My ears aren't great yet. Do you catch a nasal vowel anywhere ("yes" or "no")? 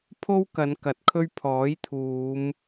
no